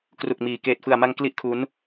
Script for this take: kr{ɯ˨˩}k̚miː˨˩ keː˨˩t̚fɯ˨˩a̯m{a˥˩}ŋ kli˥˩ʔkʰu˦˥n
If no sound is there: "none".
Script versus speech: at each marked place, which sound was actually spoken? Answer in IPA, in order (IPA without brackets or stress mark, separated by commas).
u˨˩, a˧